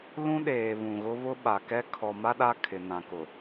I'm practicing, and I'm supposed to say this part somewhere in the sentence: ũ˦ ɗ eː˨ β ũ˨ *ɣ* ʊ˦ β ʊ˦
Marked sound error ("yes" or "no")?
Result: no